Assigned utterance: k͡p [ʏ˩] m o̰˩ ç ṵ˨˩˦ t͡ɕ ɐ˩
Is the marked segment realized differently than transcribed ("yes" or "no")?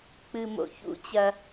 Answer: yes